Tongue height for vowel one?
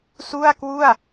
high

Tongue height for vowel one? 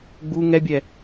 high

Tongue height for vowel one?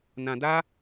low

